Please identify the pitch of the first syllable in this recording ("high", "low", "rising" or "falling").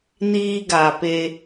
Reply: high